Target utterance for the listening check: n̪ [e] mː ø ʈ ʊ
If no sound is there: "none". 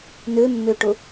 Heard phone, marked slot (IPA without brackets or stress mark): ø